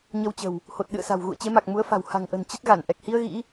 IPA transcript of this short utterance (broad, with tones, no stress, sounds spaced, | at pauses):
ɲ ə˧ w t͡ɕ ə̤˨˩ w | h o˨˩ t̚ ɗ ɨ̰˧˨ ə̯ s a̤˨˩ w ɣ ṵ˧˨ ə̯ t͡ɕ e˨˦ m a˨˩ k̚ m u˨˦ ə̯ f a̤˨˩ w h a̤˨˩ ŋ ʔ ə̤˨˩ n t͡ɕ ə˦˥ t̚ ɣ a˧˩ n ʔ ɛ˨˩ k̚ h i˧ ə̯ ɣ ḭ˧˥